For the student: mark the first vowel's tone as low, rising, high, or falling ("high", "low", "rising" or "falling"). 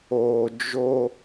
low